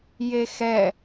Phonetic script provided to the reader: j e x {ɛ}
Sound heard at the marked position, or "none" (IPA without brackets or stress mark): ɛ